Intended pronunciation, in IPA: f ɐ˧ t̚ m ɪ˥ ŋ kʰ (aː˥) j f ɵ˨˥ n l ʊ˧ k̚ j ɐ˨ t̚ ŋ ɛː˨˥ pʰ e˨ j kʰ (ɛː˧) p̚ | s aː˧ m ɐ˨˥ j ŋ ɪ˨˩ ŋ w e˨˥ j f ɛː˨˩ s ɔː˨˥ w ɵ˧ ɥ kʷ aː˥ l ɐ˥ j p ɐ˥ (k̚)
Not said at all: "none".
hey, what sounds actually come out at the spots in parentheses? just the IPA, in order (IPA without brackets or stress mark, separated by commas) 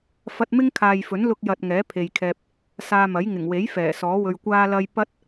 aː˨, ɛː˧, t̚